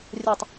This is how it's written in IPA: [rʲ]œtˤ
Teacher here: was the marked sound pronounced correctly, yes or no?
yes